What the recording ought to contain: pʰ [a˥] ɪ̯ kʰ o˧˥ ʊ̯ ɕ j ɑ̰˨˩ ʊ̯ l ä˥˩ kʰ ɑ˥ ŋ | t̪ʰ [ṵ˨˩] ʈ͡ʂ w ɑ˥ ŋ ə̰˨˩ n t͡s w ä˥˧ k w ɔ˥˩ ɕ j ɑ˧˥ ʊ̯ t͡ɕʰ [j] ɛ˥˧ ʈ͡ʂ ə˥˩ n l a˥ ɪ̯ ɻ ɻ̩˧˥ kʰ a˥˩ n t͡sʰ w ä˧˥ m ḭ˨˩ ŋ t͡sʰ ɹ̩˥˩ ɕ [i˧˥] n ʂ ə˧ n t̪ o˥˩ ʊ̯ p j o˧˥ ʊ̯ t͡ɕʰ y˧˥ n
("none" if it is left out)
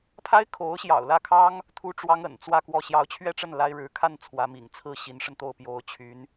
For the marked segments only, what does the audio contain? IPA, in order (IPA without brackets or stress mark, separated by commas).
a˥, u˥, ɥ, i˧˥